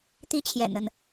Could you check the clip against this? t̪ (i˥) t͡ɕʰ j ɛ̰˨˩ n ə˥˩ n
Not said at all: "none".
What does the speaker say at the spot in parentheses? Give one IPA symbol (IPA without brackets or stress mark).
i˥